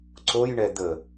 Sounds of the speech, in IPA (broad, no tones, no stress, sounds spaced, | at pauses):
ǀ o j ɳ ɛ d̪ ə